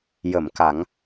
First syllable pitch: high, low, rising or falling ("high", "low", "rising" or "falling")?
low